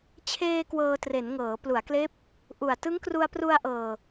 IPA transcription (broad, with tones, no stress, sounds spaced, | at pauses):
t͡ɕʰ eː˧ k w ɤː˧ t r e˩˦ n ŋ ɤː˩˦ p l u˩˦ a̯ k l eː˦˥ p̚ | ʔ u˨˩ a̯ t ɯ˦˥ ŋ k r u˧ a̯ p r u˧ a̯ ʔ ɤː˨˩